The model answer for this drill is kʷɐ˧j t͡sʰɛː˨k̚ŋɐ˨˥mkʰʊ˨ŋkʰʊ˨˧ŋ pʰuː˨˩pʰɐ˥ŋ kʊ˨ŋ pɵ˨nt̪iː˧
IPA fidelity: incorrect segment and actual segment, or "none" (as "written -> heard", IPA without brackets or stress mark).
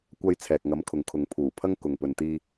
none